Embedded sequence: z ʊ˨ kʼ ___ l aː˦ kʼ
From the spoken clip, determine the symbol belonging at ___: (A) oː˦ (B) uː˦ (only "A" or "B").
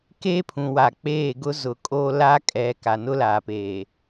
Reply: A